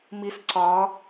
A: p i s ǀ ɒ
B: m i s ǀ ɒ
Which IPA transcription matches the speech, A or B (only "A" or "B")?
B